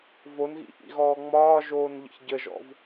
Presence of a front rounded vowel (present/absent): absent